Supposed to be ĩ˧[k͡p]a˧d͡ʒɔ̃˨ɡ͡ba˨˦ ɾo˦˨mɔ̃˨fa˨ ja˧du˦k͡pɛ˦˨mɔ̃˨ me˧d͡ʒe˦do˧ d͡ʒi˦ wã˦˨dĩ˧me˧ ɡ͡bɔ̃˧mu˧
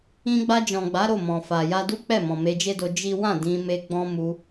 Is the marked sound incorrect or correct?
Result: incorrect